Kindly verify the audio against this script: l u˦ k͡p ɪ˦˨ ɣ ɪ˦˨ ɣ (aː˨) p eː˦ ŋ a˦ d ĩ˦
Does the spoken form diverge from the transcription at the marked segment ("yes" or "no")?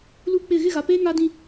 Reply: yes